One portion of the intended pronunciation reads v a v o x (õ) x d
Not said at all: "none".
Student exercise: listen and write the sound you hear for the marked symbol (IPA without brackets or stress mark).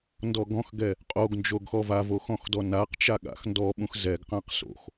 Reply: ɔ̃